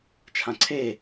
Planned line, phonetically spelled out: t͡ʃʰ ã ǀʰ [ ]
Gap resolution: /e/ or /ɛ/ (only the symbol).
e